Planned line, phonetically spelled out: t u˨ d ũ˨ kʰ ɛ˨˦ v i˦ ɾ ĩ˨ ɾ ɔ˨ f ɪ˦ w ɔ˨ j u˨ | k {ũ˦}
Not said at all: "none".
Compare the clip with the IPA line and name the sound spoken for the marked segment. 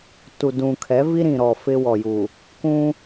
ũ˦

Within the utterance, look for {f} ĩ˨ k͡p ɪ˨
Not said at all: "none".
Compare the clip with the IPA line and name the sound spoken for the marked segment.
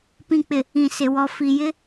p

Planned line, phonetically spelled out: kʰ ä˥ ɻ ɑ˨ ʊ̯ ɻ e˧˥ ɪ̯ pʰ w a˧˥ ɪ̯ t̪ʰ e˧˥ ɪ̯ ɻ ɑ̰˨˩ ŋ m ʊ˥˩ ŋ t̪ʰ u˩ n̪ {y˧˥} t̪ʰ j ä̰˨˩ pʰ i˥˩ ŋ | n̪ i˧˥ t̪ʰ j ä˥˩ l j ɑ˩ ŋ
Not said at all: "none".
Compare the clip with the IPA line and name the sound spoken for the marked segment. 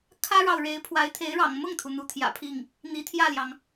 u˧˥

